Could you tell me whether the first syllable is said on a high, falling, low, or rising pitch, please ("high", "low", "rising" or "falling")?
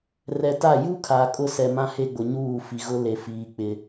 low